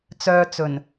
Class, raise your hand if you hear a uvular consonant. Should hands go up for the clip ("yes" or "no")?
no